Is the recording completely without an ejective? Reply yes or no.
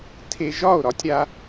yes